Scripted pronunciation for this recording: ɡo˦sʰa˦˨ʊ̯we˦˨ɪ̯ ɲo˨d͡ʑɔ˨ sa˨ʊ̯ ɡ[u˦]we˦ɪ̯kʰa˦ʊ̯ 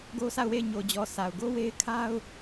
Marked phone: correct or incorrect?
incorrect